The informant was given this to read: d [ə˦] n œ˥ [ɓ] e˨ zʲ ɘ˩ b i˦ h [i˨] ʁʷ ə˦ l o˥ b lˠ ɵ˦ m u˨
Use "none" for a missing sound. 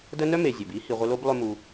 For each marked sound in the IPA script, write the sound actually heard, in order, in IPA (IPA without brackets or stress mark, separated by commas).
ə˦, m, i˨